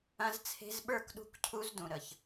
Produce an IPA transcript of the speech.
ɐ̃˧ z t͡sʰ e̤˧ z ɓ ə˞˦˨ k ɗ ṳ˦ k cʰ u˦ z d ũ˨ ɾ ə˨ ç

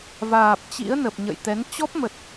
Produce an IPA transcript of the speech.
v aː˨˩ p̚ t͡ɕ ḭ˧˥ ə̯ n ə˨˩ p̚ ɲ ə̰˧˨ j t̪ ɛ˨˦ n t͡ɕ ɔ˦˥ p̚ m ə˨˩ t̚

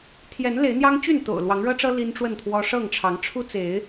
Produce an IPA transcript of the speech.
t̪ʰ j ɛ˨˦ n l e˨˦ ɪ̯ n̪ j ɑ˦ ŋ t͡ɕ y˥˨ n t̪ o̰˨˩ ʊ̯ l w ɑ˨˦ ŋ ɻ ɤ˦ ʈ͡ʂ ɤ˦ l i˦ n ʈ͡ʂ w ə˥˨ n t̪ʰ w ɔ˦ ʂ ɤ˥˨ ŋ ʈ͡ʂʰ ɑ˨˦ ŋ ʈ͡ʂʰ u˦ t͡s e˨˦ ɪ̯

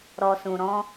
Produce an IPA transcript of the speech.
ɾ ɔ˨ s ũ˨ ɾ ɔ̃˧

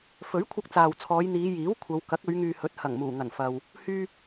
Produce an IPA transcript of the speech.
f ɵ˨˥ ɥ kʷʰ ɐ˧ k̚ t͡s aː˨ w t͡sʰ ɔː˨˧ j n̪ iː˨˧ j iː˨˥ w kʷʰ ɐ˨˧ w k ɐ˨˥ k̚ ɵ˨˧ ɥ ŋ yː˨ h ɵ˨˥ t̚ h ɐ˨˩ ŋ m uː˨˩ ŋ ɐ˨˩ n f ɐ˧ w | h yː˧

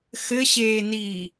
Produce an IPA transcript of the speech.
x ɘ ɕ eː n iː

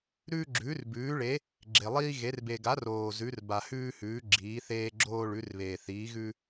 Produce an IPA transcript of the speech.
ɾ ʉː˥ ɡ͡ǁ ʉː˨˥ r b ʉː˨˥ ɭ e˨˥ | ɡ͡ǁ e˨ lˠ iː˥ ɣ e˨˥ r b e˨ ɡ a˨˥ r oː˨ z ʉ˨˥ r b a˨ h ʉː˥ h ʉː˨˥ ɡ͡ǁ iː˨˥ θ eː˥ ɡ͡ǁ oː˥ ɭ ʉ˨˥ r β eː˨ θ iː˨˥ ɣ ʉ˥

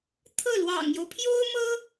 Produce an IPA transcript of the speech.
t̪ʰ ɤ˥˩ l w ɑ̰˨˩ ŋ j o˦ ʊ̯ pʰ j o˥ ʊ̯ m ɤ˥

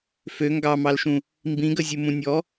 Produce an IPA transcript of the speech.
f ø ŋ ɡ ɑ m ɑ l ʃ ũ | m b ĩ ɡ ə zʲ u m ũ nʲ ɔ

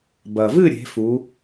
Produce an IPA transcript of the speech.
b ɐ˩ v ɨ˦˨ ɾʲ e̤˩˧ f u˩˧

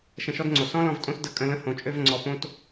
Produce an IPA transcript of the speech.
ʃ ə̃˧ ʃ ɔ˦ d ŋ͡ǀ o˨ s ɔ̃˦ l ɔ̃˧ v tʼ õ˦ s d ə˧ kʼ ə̃˧ l ə̃˦ h õ˨ t͡ʃʼ ø˧ v ŋ͡ǀ ɔ˨ p õ˧ t

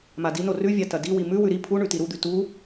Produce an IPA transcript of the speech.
m a d i n o r ʉ vʲ a t ɐ d i w i m ʉ w ʉ ɾ i pʰ u ɳ ʉ t i ɾ u d̪ ʉ t u

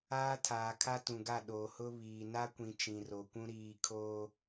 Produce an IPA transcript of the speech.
aː˦ tʰ aː˨ kʰ a˦ t ũ˨ ɡ a˦˨ ɗ oː˨ h ʊ˦ β iː˨ n a˦ kʷ ĩ˨ t͡ʃ ĩ˨ r o˨ kʷ ũ˦ ɾ iː˨ kʰ oː˦

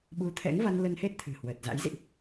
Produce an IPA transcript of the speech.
ɓ u˨˦ t̪ʰ ɛ̰˧˥ ŋ v a˧ n l ə˧ n h e˦˥ t̚ t̪ʰ ɨ̤˨˩ h w əː˨˩ t̚ z a̰˧˥ j z ḭ˧˨ ʔ

